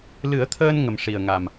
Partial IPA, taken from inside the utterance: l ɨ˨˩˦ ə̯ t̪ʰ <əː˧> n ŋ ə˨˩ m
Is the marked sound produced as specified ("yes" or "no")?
yes